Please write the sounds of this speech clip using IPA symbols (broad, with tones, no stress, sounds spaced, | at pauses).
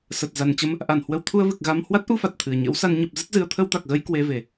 s ə˨˩ t̚ z a˨˩ n t͡ɕ ə˧ m | ʔ a˧˩ n h w ə˧ w t̪ʰ u˧ ə̯ v ɨ˨˩ k̚ ɣ a˧ m h w a˦˥ t̚ ʔ u˧ f a˨˩ t̚ t̪ʰ ɨ˨˩ ə̯ ɲ ə̰˧˥ w s a˧ n ɲ ə˨˩ p̚ z ɨ˦˥ t̚ z ɨ˨˦ ə̯ t̪ʰ ə˧ w t̪ a˨˩ k̚ ɣ ə˧ j k w e˧ v e˨˩